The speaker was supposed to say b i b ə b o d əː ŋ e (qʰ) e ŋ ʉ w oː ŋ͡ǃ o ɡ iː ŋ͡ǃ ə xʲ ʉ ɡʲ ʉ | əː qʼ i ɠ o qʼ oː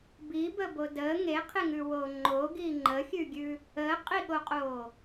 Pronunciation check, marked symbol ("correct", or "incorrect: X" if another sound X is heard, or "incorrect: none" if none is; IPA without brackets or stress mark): correct